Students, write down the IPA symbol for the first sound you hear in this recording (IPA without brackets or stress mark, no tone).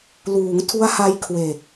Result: l